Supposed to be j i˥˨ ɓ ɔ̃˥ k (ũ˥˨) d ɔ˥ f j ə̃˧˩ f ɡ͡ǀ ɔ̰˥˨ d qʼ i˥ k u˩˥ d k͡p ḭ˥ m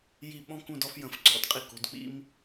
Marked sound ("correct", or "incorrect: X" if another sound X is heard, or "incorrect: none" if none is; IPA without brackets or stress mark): correct